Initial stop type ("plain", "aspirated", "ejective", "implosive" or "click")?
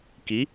plain